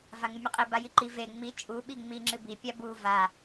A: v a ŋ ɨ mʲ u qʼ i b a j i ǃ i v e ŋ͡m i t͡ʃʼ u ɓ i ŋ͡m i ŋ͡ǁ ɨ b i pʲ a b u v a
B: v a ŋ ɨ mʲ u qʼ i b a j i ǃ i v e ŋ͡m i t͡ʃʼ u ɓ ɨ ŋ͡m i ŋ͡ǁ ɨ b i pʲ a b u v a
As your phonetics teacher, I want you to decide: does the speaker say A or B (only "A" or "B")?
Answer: A